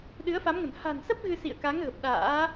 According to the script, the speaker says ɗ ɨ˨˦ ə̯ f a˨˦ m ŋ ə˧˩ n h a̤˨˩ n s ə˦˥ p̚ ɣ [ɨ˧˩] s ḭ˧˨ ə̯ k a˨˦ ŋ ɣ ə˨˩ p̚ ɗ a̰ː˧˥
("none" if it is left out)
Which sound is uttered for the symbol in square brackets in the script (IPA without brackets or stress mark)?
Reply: ɨ˧